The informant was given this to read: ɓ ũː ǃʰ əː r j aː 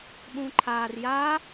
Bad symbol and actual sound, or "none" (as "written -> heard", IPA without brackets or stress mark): əː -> aː